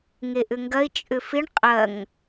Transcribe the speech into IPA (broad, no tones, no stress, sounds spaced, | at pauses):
ŋ e ʔ ʏ ŋ ɡ ɐ ɪ̯ t͡ʃʼ ʏ f ɪ ɳ qʼ ɐ ŋ